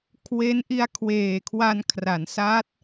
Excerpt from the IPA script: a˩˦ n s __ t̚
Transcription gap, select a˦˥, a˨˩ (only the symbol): a˦˥